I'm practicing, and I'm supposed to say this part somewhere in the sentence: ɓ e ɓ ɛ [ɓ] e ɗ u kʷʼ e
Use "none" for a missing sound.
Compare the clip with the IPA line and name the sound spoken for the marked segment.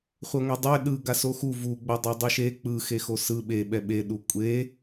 ɓ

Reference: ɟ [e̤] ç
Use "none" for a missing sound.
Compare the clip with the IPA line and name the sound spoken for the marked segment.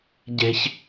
e̤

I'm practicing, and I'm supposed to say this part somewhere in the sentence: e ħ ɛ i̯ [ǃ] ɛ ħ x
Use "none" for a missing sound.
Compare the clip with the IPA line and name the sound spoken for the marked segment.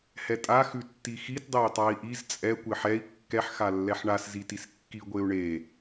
kː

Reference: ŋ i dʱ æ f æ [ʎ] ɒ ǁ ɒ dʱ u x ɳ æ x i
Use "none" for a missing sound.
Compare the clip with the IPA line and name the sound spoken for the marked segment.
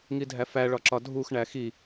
ɭ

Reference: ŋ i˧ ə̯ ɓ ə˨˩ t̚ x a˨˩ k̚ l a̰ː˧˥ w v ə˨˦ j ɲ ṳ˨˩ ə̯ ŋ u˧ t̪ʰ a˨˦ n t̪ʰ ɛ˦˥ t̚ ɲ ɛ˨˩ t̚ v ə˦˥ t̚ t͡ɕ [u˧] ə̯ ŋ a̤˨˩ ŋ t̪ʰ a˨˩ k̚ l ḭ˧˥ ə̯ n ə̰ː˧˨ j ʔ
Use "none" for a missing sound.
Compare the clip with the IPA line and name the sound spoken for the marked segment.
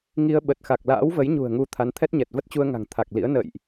u˧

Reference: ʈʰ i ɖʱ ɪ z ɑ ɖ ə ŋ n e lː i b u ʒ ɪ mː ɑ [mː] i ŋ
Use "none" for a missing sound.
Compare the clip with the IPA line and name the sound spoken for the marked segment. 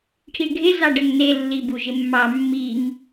mː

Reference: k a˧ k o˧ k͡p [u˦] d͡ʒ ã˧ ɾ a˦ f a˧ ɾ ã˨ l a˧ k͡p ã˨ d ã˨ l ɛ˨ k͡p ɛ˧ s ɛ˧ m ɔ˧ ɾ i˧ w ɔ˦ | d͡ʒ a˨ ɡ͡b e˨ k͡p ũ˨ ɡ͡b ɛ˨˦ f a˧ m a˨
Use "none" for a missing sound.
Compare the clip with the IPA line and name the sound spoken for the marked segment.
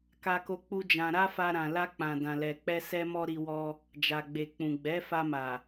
u˦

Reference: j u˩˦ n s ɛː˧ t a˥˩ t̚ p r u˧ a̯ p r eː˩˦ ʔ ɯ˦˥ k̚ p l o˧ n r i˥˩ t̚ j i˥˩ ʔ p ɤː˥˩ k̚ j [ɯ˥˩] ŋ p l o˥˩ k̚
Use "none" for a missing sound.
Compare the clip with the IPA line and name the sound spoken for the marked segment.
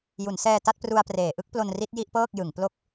ɯ˩˦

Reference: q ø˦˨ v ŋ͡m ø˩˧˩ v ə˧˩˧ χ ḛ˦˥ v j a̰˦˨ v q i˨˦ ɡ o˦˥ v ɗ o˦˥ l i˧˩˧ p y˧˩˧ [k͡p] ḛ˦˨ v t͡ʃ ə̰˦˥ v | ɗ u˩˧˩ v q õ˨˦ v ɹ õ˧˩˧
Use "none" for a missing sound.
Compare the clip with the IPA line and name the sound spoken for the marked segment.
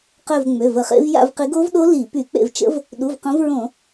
k͡p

